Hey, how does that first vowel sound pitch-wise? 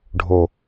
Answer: low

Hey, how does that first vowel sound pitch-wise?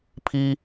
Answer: low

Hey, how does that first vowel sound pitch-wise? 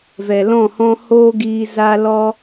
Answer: low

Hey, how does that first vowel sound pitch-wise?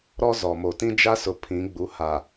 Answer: high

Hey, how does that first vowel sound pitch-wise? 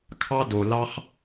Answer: high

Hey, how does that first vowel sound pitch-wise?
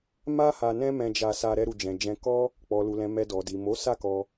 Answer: high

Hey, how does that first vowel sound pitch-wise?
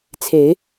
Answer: rising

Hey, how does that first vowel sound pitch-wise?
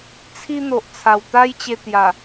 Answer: high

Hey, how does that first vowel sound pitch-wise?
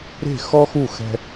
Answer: falling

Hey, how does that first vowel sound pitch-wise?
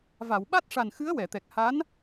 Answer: low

